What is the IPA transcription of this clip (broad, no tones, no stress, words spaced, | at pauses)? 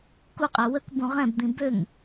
kuqʼɛ wəkbũ ʁɛ̃bd̪ĩ bøŋ